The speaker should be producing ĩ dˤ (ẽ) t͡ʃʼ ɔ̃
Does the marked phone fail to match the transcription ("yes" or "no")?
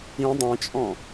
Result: no